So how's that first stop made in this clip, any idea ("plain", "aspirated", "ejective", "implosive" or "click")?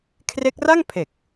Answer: aspirated